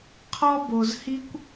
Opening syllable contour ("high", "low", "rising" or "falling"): high